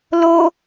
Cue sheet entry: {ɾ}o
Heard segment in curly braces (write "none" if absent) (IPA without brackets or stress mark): l